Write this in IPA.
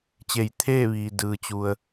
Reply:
t͡ɕ e˧˩ j t̪ʰ eː˥˨ ʋ iː˩ d ɯː˩ t͡ɕ u˩ ə̯

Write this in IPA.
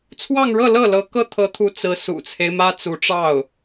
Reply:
t͡sʰ w ɑ˥˧ ŋ ɻ ɤ˥˧ l ɤ˥˩ l ɤ˧˥ k ɤ˥˩ t̪ʰ ɤ˧˥ t̪ʰ u˧˥ t͡s ɹ̩˧˥ s ṵ˨˩ t͡sʰ e˦ ɪ̯ m ä˥ t͡s u˧˥ ʈ͡ʂ ɑ˥˩ ʊ̯

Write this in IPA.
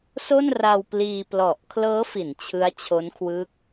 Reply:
s o˥˩ n r a˧ w p l iː˧ p l ɔ˨˩ ʔ kʰ l ɤː˦˥ f i˩˦ n t͡ɕʰ ɯ˦˥ a̯ t͡ɕʰ o˦˥ n kʰ w ɯː˦˥ k̚

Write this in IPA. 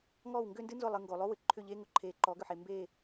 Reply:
ŋ ɔː˦˨ w ŋ ɡ ʏː˦ n d ɨ˦ n z ʊ˦˨ lˠ ɨ˨ ŋ ɡ o˨ lˠ o˦ w ɨ˨ ǃʰ ʏ˦˨ ʎ eː˦ ŋ ʊ˨ ǃʰ eː˨ ǃ ɔː˨˦ ɡ ʏ˨ ħ e˨ m b e˦˨

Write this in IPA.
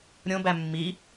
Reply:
ɾʲ õ b æ mː i

